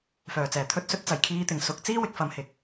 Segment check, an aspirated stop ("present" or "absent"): present